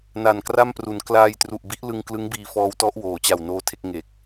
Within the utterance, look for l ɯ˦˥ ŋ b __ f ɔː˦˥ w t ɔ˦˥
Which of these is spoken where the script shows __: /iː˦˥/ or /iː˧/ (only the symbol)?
iː˧